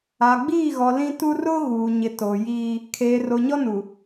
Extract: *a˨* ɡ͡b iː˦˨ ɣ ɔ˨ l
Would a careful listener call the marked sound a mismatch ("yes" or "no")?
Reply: no